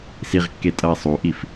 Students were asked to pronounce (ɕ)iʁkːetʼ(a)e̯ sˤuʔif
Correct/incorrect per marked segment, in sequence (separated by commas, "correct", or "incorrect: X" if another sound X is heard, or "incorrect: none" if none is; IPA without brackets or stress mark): incorrect: s, incorrect: ʌ